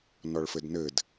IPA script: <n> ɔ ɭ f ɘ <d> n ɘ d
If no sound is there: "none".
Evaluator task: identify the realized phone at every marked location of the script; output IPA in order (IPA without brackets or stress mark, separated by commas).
n, d